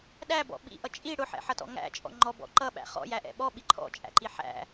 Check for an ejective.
present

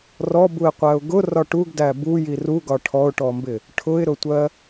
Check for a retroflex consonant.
present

